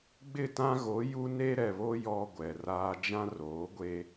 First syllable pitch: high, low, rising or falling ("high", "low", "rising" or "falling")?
falling